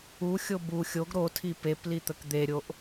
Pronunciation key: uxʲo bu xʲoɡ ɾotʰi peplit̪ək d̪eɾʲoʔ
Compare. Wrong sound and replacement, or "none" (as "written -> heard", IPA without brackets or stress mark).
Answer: none